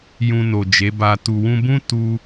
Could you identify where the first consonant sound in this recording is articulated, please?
palatal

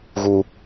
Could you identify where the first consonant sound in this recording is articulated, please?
velar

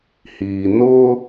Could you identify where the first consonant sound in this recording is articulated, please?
glottal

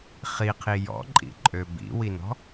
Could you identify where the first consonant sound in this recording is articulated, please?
uvular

